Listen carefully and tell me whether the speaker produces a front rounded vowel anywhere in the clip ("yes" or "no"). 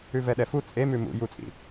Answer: no